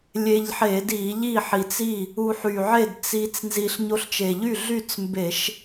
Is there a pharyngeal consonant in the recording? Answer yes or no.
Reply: yes